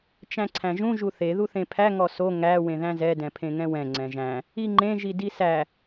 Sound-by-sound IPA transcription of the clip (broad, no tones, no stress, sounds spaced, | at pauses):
t͡ʃ æ̃ ǀʰ æ̃ ʒ ũ ʒ u θ e ð u θ ẽ pʰ æ ŋ ɔ s o ŋ æ w ẽ ð æ̃ z ɛ d ɛ̃ pʰ ẽ ŋ ɛ̃ w ɛ̃ ŋ͡ǀ ɛ̃ ʒ æ̃ | i ŋ͡ǃ ẽ ʒ i d i s æ